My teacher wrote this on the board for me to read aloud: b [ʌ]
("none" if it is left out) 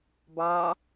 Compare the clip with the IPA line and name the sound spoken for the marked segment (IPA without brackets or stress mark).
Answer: ɑ